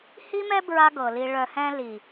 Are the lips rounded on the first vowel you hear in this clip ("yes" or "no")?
no